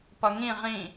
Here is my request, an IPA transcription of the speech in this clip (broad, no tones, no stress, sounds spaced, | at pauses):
p ʌ ŋ ĩ ʁ ĩ